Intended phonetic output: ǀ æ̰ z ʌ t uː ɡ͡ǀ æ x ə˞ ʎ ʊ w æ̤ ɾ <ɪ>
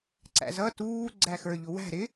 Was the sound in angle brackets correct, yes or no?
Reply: yes